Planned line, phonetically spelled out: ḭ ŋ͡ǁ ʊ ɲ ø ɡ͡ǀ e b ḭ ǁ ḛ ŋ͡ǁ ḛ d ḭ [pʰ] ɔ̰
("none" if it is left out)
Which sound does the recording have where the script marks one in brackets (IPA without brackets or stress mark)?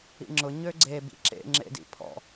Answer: pʰ